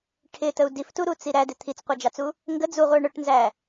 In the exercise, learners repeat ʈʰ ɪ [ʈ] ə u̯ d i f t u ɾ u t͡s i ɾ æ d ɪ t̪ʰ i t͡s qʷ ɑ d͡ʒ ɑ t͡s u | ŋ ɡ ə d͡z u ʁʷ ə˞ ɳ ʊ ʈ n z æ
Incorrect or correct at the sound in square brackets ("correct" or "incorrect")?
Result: incorrect